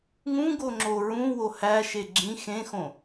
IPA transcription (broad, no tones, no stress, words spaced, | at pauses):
ŋũ ɡoŋ͡ǁoɹũwo hæʃe ɡ͡ǁĩ xẽxõ